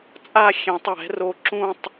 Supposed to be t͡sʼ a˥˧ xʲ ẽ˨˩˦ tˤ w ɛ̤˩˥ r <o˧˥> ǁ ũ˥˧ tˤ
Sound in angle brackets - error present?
no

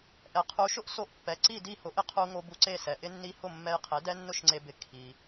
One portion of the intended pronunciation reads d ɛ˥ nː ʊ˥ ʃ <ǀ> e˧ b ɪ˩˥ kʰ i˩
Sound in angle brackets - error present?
yes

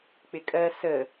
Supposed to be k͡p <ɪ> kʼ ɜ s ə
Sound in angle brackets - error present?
no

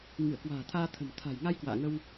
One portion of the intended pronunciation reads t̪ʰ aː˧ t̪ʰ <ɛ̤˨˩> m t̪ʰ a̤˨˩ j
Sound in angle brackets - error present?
yes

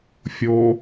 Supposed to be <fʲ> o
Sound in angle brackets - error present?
no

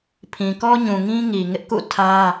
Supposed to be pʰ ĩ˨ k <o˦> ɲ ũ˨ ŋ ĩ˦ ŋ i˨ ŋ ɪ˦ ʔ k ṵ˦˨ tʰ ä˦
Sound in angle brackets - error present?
yes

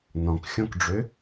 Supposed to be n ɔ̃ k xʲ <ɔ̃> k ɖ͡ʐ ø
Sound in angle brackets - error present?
no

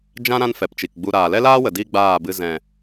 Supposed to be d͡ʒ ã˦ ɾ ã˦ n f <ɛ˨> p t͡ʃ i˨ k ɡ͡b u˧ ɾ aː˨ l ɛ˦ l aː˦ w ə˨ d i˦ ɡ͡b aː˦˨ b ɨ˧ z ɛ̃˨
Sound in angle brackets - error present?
no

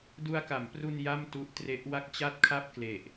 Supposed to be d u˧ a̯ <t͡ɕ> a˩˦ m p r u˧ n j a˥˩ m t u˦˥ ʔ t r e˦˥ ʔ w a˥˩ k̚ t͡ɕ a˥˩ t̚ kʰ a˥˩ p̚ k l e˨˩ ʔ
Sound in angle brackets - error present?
yes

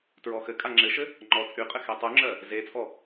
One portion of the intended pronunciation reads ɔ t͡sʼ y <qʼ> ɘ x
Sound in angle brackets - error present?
no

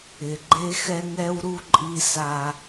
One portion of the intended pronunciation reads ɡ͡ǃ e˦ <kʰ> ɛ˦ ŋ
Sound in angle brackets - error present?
yes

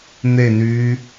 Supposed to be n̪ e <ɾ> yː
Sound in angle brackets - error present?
yes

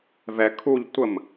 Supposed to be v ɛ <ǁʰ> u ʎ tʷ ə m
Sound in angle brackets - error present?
yes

